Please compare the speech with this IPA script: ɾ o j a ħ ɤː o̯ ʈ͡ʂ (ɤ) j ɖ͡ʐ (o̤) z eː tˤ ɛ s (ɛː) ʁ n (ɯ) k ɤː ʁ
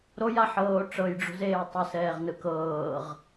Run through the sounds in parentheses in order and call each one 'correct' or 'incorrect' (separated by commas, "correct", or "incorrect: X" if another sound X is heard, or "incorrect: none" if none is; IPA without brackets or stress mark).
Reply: correct, correct, correct, correct